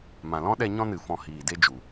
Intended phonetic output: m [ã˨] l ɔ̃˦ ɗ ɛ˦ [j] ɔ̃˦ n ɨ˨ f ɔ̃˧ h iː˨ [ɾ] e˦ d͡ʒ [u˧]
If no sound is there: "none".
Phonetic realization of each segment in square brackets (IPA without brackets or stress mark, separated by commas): ã˨, ɲ, d, u˨